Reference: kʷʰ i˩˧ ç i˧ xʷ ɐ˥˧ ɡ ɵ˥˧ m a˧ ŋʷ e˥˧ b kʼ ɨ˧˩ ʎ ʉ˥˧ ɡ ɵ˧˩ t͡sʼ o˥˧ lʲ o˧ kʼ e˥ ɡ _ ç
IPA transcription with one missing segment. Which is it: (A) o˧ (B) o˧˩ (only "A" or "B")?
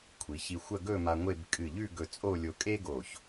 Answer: B